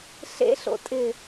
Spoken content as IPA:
ɬ ḛ ɬ o̰ tʼ ɪ

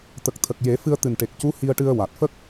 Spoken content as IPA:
t̪ ə˨˩ k̚ t̪ʰ ə˨˩ k̚ j e˨˩˦ f ɨ˧ ə̯ t̪ ɨ˨˩ n ʈ e˨˩ k̚ c u˧˥ h i˧ ə̯ ʈ ɨ˧ ə̯ w a˨˩ t̚ f ə˦˥ k̚

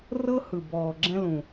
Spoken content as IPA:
r ɤ˦ h ɯ˨ b ɔː˨ ɡ͡ǁ ɛ̃˦ l ũ˨

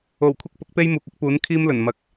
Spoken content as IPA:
o˨˩ w kʷʰ ɐ˥ k̚ p ʊ˨˥ k̚ p e˥ j m uː˨ k̚ ɐ˥ k̚ p uː˨˥ n kʰ iː˥ m l ɵ˨˩ n m ɐ˨ k̚

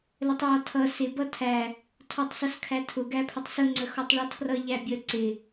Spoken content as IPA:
l ə tˤ j ɔ tʰ ʌ s ɪ b ʌ tʰ æ | tʰ ɔ tˤ s ʌ s kʰ æ tʰ ʊ ɡ æ pʰ ə tˤ s ʊ ŋ͡ǀ ə x ɔ tˤ ɭ ɔ tʰ r ʌ ʎ æ bʲ ə ǀ ɪ

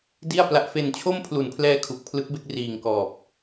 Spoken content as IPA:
d i˥˩ a̯ p l a˦˥ ʔ f e˧ n t͡ɕʰ o˥˩ m pʰ l u˨˩ n pʰ l ɛː˧ kʰ u˨˩ k̚ pʰ l ɯ˦˥ k̚ b e˥˩ k̚ r iː˨˩ ŋ k ɔː˨˩ p̚

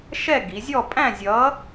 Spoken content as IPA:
ʃ ɛ˥˨ ɡ i˩˧ zʲ ɔ˥˨ pʼ æ̃˥˨ zʲ ʌː˨˥

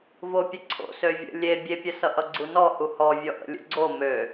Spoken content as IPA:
v o pʲ ə ǀʰ o̰ s ø vʲ ə̰ lʲ e bʲ e pʲ ə s ʌ ʔ ʌ ɡ͡ǀ u n ɔ h u h ɔ vʲ ɔ ʔ ə̰ lʲ ṵ ɡ͡ǀ o m ø

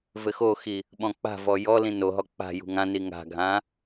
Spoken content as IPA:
v ɘ x o x i | ɓ ɔ̃ k͡p a̤ v ɔ j ɔ l ĩ n o ɦ ɔ k͡p a̤ j ṳ ŋ ã n i ŋ a̤ ɡʱ ã

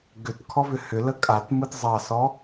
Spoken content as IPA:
ɡ ʏ t kʰ ɔ v ʏ h ʏ l ə kʼ a t m ɯ t zˤ ɑ s ɔ

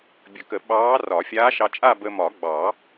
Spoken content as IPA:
bʲ ə˨˩˦ k ə˨˩˦ ɓ ɑː˧˥ r ɒ˨˩˦ fʲ aː˧˥ ʃ ɑ˧ t͡ʃʼ a˥˧ b ə˧ m ɒ˨˩˦ ɡ͡b ɑ˨˩˦

